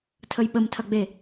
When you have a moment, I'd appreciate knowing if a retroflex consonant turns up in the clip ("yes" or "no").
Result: no